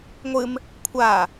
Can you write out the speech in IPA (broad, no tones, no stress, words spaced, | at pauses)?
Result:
ŋʷɨm | kʷʰa